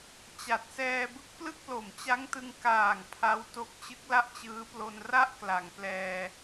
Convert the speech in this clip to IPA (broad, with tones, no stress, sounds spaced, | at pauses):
t͡ɕ a˨˩ t̚ s ɛː˧ b ɯ˦˥ k̚ p l ɯ˥˩ k̚ l o˨˩ m t͡ɕ a˦˥ ŋ t ɯ˧ ŋ k aː˨˩ ŋ pʰ a˦˥ w t o˦˥ k̚ t͡ɕ ɯ˦˥ k̚ l a˥˩ ʔ t͡ɕ ɯː˦˥ p l o˧ n r a˥˩ ʔ k l a˩˦ ŋ p l ɛː˧